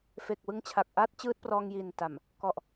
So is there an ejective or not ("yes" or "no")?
no